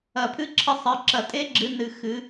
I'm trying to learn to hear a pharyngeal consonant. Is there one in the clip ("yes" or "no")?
no